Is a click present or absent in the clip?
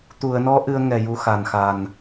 absent